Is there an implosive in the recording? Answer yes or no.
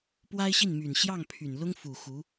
no